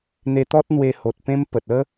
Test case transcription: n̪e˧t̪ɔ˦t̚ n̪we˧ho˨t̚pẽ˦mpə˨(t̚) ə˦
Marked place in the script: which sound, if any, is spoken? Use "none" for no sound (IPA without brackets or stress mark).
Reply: t̚